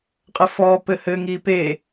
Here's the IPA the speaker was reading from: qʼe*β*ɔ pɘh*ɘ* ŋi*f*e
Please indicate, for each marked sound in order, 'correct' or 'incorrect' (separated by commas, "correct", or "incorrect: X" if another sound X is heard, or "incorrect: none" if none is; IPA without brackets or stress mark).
incorrect: f, correct, incorrect: p